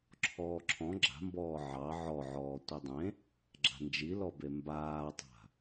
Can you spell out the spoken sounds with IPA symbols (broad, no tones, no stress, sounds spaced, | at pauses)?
ǁʰ ɔː ǁʰ ɔ̃ ɡ͡ǁ a̤ m b ɔː ʕ ɑ ʕ ɔ ʕ ɔː tʷ i dˤ ẽ | ɡ͡ǁ a̤ n d͡ʒ i l ɔ b e m b aː tˤ a̤